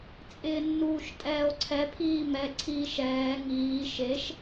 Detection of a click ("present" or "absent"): present